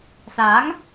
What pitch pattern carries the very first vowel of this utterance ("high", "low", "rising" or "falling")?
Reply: rising